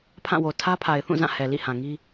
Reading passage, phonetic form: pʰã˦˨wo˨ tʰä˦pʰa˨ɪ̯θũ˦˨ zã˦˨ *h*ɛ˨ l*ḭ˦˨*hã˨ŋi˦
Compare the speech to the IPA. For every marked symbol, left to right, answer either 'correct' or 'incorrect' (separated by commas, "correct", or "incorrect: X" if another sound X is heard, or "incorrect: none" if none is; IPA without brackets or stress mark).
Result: correct, correct